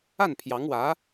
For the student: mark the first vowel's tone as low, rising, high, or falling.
falling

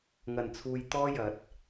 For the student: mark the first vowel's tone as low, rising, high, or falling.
low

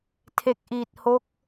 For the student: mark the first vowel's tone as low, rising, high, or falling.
low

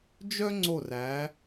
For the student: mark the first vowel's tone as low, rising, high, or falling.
high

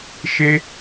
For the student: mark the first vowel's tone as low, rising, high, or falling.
high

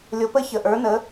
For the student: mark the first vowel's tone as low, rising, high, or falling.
rising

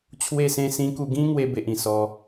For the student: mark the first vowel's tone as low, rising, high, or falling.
falling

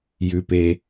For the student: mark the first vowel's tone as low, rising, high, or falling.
low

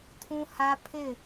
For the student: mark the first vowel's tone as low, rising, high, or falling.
high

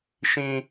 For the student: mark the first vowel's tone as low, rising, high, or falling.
high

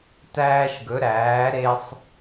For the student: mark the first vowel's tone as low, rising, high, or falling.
high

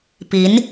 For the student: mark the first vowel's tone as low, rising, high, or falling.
rising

